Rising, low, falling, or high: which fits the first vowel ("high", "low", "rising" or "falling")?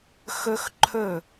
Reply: high